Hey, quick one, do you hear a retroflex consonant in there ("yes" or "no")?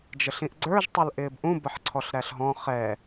no